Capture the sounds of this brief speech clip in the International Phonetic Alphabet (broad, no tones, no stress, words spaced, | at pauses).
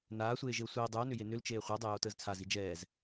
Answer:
naːsʷeːʒeo̯ sʷɛe̯ dˤʉo̯nʏje nʏlt͡ʃeː χʷəːdˤejoːtəːz t͡sʰazi d͡ʒɛːz